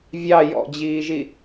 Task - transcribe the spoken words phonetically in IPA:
vʲ ɑ j ɔ̰ d͡ʑ iː ʒ i

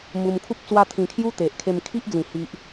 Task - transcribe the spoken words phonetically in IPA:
m u˧ m kʰ u˦ p̚ t͡s w a˦ t̪ʰ ĩ˧ kʰ j u˦ t̪ e˨ ʔ kʰ e˧ m kʰ i˦ ʔ d͡z ĩ˨˩ h i˦ ʔ

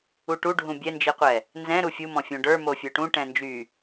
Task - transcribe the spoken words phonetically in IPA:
u ʈ u ɖʱ ũ bʲ ɛ n d͡ʒ i qʷ ɛ | n z ɛ̃ ɾ u fʲ u m ɔ̃ fʲ õ ɖ ə˞ m o fʲ ə˞ ʈ ũ ʈ ɛ̃ n d͡ʒ y

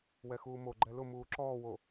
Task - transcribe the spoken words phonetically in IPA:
w ɛ x uː m o ɡ͡ǃ ɛ l ʊ m uː ǁ ɔː w o

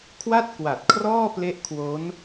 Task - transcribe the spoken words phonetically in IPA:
kʰ w a˥˩ t̚ k w a˨˩ t̚ kʰ r ɔː˥˩ p l e˦˥ ʔ kʰ w o˦˥ n

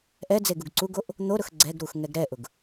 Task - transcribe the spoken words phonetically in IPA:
ʔ ɛ d͡z e ɡ u ɡ ǀ u ɡ o ʔ | n̪ o ɾ ʊ x ɡ͡ǀ ɛ ɡ ɾ u x ŋ ɛ ɡ ɾ ɛ ʔ ʊ ɡ

